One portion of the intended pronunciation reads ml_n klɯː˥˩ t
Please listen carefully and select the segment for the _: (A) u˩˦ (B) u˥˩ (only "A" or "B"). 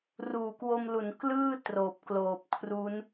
A